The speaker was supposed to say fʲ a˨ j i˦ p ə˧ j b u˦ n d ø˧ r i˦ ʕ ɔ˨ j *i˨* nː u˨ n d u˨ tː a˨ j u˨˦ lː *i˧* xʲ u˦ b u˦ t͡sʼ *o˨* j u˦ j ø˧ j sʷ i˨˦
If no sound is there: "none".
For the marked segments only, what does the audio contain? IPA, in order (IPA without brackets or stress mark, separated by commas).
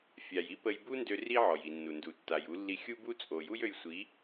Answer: i˨, i˧, o˨